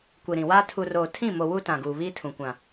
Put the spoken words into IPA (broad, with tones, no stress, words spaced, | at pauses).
kʷi˨ɾĩ˨waː˦ tʰu˨roː˨ tʰĩ˦˨mo˨ wu˦ tã˨ɡuː˨βiː˦tʰũ˨ kʷã˨